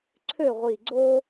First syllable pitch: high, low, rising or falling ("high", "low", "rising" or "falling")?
falling